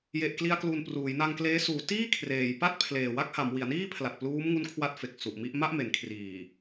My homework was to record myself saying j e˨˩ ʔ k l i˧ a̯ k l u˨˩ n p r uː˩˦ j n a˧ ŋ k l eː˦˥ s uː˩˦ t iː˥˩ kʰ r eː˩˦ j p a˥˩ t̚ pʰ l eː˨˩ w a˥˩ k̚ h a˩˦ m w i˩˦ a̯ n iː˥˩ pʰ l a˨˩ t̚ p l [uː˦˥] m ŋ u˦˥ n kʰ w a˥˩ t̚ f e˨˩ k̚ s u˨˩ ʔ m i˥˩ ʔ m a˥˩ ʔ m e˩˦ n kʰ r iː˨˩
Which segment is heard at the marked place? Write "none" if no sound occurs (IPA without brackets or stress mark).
uː˦˥